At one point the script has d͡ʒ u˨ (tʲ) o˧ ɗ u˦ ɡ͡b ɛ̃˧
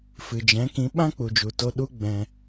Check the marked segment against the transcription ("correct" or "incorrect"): incorrect